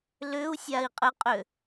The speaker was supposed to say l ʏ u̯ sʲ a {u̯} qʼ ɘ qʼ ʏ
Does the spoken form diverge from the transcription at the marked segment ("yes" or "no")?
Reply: yes